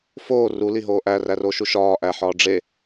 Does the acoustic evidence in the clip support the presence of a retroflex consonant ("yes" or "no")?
yes